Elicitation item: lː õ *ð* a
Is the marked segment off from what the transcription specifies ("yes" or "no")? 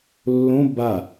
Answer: yes